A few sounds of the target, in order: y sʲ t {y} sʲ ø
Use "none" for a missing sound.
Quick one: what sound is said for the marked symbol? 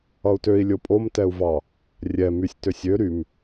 ø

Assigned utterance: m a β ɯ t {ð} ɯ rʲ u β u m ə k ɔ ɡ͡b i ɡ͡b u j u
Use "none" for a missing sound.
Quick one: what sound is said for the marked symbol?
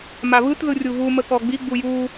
ð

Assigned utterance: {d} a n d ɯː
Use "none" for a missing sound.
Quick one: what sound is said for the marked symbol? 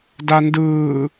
d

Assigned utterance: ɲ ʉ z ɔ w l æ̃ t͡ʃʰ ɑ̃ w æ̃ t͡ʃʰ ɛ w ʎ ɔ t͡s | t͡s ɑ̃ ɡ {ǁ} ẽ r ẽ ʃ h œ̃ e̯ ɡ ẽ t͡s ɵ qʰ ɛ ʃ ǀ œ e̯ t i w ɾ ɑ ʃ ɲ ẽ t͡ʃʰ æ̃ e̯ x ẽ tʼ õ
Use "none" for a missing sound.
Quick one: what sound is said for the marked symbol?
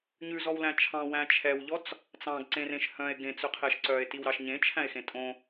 ǀ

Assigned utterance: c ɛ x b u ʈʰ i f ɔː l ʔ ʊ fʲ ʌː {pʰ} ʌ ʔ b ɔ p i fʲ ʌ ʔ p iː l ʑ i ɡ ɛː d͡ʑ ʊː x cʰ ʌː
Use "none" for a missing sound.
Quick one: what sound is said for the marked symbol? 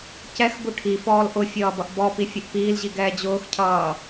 b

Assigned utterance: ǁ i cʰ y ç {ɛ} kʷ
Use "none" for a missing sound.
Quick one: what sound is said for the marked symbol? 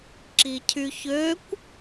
ø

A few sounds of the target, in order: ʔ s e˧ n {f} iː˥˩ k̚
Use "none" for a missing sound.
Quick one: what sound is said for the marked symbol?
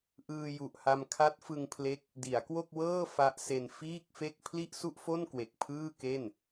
f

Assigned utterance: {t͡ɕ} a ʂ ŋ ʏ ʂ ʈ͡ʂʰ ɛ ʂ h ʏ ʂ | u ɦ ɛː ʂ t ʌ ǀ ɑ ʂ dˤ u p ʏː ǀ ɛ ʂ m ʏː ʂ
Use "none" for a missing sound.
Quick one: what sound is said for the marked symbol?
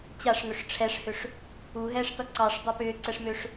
t͡ɕ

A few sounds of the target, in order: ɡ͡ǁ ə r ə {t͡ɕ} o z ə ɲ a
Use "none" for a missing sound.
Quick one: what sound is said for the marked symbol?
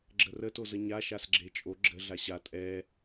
t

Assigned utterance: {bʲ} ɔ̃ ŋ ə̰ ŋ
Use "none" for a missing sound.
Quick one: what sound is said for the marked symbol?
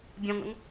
bʲ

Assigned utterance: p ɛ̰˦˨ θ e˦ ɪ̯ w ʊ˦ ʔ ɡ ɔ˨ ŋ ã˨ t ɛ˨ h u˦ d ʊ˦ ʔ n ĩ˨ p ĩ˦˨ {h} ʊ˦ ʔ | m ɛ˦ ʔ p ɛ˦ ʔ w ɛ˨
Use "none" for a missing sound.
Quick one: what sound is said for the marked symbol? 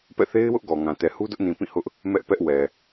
h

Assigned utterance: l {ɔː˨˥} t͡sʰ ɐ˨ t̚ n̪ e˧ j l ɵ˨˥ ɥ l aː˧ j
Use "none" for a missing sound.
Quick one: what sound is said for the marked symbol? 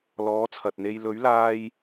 ɔː˨˥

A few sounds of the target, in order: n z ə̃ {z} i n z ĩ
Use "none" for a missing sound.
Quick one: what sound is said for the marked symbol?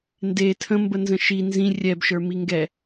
ʃ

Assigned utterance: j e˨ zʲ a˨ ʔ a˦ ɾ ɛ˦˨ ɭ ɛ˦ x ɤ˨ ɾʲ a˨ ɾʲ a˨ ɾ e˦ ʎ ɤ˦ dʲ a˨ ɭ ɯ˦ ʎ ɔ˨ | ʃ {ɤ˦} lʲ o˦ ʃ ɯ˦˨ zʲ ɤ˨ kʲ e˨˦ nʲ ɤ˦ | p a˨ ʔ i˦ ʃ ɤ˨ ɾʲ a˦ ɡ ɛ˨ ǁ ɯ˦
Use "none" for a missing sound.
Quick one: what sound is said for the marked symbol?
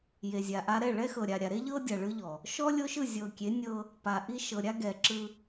ɔ˦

